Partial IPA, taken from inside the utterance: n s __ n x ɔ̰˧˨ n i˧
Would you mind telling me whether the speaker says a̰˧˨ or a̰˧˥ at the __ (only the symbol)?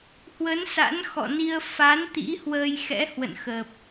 a̰˧˥